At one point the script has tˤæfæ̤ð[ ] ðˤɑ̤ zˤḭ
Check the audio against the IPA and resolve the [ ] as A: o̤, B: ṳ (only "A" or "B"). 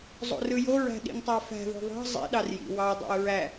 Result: A